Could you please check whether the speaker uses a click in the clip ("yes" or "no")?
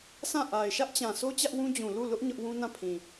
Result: no